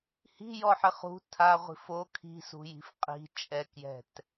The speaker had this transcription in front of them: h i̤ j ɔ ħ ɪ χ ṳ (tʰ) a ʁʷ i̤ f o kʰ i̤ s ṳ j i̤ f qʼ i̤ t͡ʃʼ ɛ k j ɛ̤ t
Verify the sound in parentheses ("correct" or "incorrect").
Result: correct